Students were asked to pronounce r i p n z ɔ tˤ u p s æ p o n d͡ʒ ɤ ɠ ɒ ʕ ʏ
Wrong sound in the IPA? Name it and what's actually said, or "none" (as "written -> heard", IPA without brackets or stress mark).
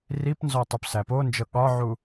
ʏ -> u